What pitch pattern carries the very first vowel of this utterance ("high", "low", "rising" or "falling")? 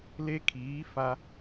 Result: high